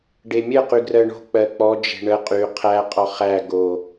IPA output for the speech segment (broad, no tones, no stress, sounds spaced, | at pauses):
ɖ e mʲ ə q y ɡ r ɜ ɳ o̤ k͡p ɜ k͡p ɔ d͡ʒ e̤ ɳ ə qʼ y qʰ æ qʼ ɔ χ æ ɡ o